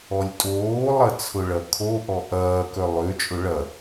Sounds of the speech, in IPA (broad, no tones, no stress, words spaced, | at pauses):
ɔlʲtʼoːlˠɐ t͡sʰʊɭɐkʰoʔɔ ʔɐːkœ lˠøt͡ʃʼʊ ɭɐ